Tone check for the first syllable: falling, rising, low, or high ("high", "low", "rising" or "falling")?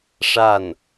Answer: falling